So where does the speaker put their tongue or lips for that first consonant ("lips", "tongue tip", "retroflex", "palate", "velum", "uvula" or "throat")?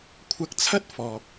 velum